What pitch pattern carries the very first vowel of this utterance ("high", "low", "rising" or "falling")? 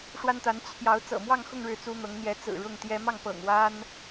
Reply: high